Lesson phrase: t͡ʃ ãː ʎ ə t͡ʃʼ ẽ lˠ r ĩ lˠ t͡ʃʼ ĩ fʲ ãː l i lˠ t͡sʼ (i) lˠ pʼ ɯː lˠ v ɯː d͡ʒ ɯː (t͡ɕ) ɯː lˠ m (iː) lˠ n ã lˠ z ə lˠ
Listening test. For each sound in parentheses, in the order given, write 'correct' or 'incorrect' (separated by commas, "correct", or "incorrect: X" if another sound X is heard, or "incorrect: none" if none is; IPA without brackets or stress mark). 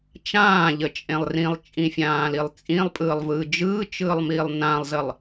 incorrect: ĩ, incorrect: t͡ʃ, correct